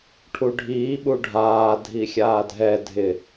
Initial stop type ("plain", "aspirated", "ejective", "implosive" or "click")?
aspirated